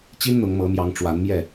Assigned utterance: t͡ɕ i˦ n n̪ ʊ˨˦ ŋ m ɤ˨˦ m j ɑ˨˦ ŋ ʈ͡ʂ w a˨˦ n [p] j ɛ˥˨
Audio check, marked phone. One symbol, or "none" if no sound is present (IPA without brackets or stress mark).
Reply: m